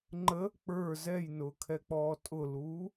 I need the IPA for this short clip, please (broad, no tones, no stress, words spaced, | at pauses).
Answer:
ŋ͡ǃə | k͡pə˞ zɛjnʊːkʰɛk͡pɔː tʼʊluː